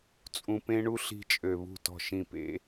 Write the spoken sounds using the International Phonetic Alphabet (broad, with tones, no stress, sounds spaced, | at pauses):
t͡sʼ ũ˧ p ẽ˦ ɳ u˦ ɬ i̤˧ t͡ʃʼ ø˨ β ṳ˦˨ t ɔ̤˦˨ ʃ ĩ˦˨ p ḛ˦